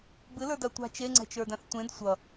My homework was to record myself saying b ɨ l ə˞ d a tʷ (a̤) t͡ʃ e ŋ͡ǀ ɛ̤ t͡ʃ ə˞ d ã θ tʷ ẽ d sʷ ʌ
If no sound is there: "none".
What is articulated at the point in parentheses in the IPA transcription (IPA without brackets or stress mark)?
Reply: a̤